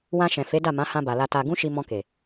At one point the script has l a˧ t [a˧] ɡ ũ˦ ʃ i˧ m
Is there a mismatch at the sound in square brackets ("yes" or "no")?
no